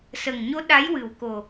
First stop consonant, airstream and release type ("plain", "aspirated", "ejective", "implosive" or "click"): implosive